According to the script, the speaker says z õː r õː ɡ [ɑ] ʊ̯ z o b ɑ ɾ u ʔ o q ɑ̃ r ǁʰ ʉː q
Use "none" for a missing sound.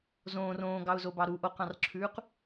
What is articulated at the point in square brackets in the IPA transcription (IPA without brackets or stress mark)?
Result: ɑ